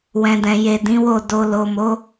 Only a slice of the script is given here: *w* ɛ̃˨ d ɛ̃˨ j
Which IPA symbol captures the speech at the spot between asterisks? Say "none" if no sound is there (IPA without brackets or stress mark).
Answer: w